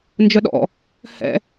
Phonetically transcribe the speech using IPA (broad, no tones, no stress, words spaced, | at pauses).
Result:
nd͡ʒœɗɔ̰ | hɛ̰